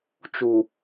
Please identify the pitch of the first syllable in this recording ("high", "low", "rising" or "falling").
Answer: low